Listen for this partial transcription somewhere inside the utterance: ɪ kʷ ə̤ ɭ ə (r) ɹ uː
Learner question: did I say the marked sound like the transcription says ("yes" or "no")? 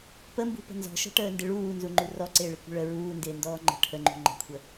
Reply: no